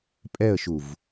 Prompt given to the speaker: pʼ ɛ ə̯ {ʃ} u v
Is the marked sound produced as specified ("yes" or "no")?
yes